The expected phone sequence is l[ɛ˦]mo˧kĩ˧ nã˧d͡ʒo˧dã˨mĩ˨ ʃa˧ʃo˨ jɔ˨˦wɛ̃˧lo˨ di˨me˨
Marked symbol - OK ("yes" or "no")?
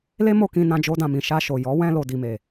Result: no